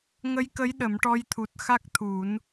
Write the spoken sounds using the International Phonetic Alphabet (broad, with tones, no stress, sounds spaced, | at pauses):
ŋ ə˧˥ j k ə˧˥ j ɗ ə˨˩˦ m ʈ ɔ˧ j t̪ʰ u˨˩ t̚ x a˦˥ k̚ t̪ʰ u˨˩˦ n